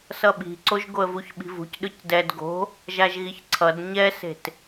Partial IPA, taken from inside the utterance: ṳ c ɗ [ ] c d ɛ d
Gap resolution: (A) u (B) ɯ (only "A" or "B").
B